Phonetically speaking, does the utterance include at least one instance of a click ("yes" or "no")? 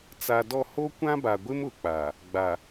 no